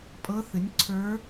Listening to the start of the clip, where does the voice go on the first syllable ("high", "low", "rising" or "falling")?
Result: rising